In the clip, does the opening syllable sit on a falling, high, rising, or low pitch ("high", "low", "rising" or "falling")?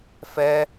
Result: high